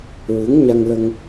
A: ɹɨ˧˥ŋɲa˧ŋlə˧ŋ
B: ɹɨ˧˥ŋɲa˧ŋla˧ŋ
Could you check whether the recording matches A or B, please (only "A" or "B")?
A